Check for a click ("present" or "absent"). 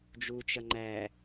present